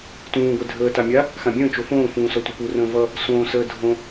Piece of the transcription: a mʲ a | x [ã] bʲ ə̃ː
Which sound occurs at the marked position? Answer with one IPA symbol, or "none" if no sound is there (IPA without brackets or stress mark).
ã